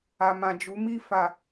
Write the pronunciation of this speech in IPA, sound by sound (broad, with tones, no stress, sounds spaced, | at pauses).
a˨ m ã˨ d͡ʒ u˨˦ m i˦˨ f a˨